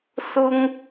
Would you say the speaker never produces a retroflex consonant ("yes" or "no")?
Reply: yes